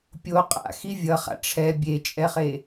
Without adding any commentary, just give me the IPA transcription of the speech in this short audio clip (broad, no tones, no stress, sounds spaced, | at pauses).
pʲ o qʼ a̰ x i vʲ ʌ χ a̰ ʈ͡ʂʰ ɛ bʲ e t͡ʃʼ ɛ χ e